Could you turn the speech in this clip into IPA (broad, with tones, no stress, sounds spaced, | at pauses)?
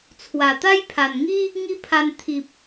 t͡sʰ w a˨˩ t̪ a˦ j pʰ a˨˩ n ŋ i˦ | ŋ i˦ pʰ a˧ n t̪ʰ i˨ p̚